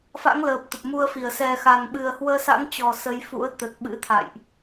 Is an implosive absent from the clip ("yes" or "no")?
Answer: no